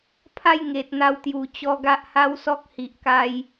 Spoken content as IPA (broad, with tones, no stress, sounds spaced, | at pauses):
pʰ a˥˧ j ŋ e˨ t̚ n̪ a˧ w t̪ j u˨˩ t͡ɕ ɔ˧ ɡ a˦ ʔ h a˦ w s ɔ˦ k̚ h i˨ ʔ k a˧ j